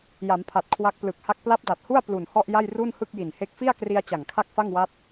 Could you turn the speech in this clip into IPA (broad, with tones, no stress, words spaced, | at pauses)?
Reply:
ja˩˦mpʰa˨˩t̚ kʰwa˦˥k̚plɯ˨˩k̚ha˥˩k̚ pla˦˥p̚da˨˩t̚hu˥˩a̯ plu˨˩nhɔ˥˩ʔja˥˩j ru˥˩nhɯ˥˩k̚ji˨˩nhe˦˥k̚ fi˥˩a̯kri˧a̯ t͡ɕa˨˩ŋkʰa˥˩k̚fa˥˩ŋwa˦˥t̚